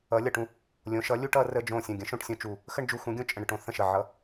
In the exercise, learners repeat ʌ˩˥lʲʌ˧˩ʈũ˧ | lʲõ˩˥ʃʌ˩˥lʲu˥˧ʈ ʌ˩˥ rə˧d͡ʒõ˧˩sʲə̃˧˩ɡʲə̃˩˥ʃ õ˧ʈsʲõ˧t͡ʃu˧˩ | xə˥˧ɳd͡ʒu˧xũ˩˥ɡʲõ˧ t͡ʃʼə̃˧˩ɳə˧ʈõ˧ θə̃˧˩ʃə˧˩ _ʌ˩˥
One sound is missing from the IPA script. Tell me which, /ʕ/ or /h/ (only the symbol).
ʕ